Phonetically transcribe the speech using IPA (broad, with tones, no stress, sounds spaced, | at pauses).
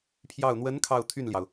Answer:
pʰ j ɑ˥˩ ʊ̯ n̪ w ə˧˥ n kʰ ɑ˥˧ ʊ̯ t̪ʰ y˥˩ n l j ɑ˩ ʊ̯